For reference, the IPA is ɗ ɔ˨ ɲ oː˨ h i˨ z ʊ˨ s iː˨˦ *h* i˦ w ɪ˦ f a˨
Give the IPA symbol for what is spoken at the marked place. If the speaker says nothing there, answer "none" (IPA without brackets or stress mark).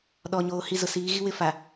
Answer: ɣ